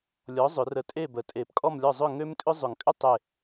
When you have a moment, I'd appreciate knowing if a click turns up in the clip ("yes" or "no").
no